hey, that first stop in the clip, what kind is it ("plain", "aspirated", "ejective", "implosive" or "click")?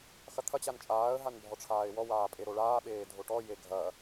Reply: aspirated